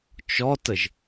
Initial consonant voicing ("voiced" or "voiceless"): voiceless